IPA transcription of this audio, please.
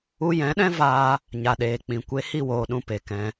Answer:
u˧ j ɛ̃˨˦ ɗ ɛ̃˦ v aː˧ | ɲ a˨ ɗ eː˨ k͡p ĩ˨ kʷ e˧ h i˦˨ w oː˨ ɗ ũ˨ p e˨ k ɛ̃˧

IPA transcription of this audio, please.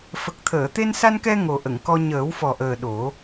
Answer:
f ə˨˩ k̚ t̪ʰ əː˨˩˨ t̪ e˧ n s a˧ n k ɛ˧ ŋ o˨˩ ʔ ə˨˩˨ ŋ k ɔ˧ ɲ əː˨˩˦ w f ɔ˨˩ ʔ əː˨˩ ɗ o˨˩˦

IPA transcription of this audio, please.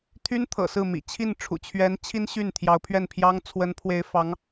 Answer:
t̪ʰ y˥ n t̪ʰ ɤ̰˨˩ s ɹ̩˥˩ m ḭ˨˩ t͡ɕʰ i˥˩ n ʈ͡ʂʰ ṵ˨˩ t͡ɕʰ ɥ ɛ˧˥ n t͡ɕʰ i˥ n ɕ y˥˩ n t̪ʰ j ɑ˧˥ ʊ̯ pʰ ɥ ɛ˥˩ n pʰ j ɑ˥ ŋ t͡sʰ w ə˧˥ n pʰ w e˧˥ ɪ̯ f ɑ˧˥ ŋ

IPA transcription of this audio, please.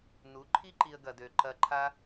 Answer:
n u˨˦ ǃʰ i˦ ǃ i˧ ə̯ ɡ ɐ˧ d ø˧ ǃ ɐ˧ ǃʰ a˦

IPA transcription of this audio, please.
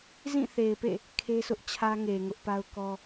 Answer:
z ĩ˦˨ θ e˨ ɪ̯ p ḛ˦˨ | kʰ e˦ sʰ ʊ˦ ʔ t͡ɕʰ ä˦ ŋ e˨ ŋ ʊ˦ ʔ p a˦ ʊ̯ k ɔ˦

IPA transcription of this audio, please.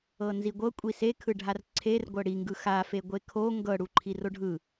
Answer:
ɤ n z i ɡʷ ɤ kʷʼ i s e kʰ ɯ ɖʱ a r ǀʰ e r ɡʷ ɤ ɽ i ŋ ɡ ɯ x a f e ɡʷ e kʰ o ŋ ɡ ɤ ɽ u ǃʰ i r o ɖʱ ɯ

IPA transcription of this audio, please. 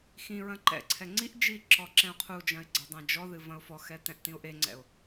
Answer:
x ĩ ɹ ɐ̃ ǃ ɛ̰ ǀʰ ɛ ŋ͡ǀ i ʔ d͡ʒ i ǁ ɔ ǁ ɛ̃ ʊ̯ qʰ u d͡ʒ ɐ̃ ɪ̯ ɡ͡ǀ e dˤ ɛ̃ d͡ʒ ɔ ð ɨ v ɐ̃ ʊ̯ f ɔ x ɛ t ɛ̃ ʔ t ĩ ʊ̯ ʔ e ŋ͡ǀ ɛ̰ ʊ̯

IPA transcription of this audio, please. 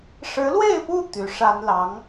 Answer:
ʂ ɻ̩˧˥ l w e˥˧ ɪ̯ p u˥˩ t̪ y˧˥ ʂ a˥ n l ɑ˧˥ ŋ

